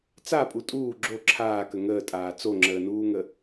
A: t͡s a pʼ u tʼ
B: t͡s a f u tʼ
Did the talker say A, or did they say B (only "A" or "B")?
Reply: A